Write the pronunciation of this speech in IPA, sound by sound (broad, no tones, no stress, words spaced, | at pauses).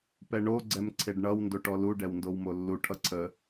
pɛɳo ɡ͡ǀɛmǀʰeɖɳʌw ndoʈɔlu ɖɛwndowmolːu ʈʰʌǀʰə